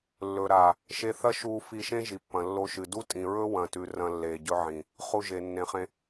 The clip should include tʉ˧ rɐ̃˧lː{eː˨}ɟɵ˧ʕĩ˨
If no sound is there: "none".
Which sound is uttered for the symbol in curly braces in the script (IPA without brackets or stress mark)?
eː˨